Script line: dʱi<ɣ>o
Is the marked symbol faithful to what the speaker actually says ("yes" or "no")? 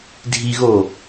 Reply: yes